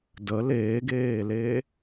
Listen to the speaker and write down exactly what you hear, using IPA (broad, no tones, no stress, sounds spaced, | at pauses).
d ə l eː ɡ eː l e